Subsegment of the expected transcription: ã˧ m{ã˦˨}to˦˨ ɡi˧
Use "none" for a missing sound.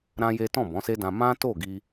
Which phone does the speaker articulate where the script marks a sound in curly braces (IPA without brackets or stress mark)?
ã˦